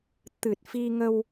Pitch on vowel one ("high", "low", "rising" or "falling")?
low